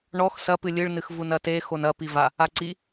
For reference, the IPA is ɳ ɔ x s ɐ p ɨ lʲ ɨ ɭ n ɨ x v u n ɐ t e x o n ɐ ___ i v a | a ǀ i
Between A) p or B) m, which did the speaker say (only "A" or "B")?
A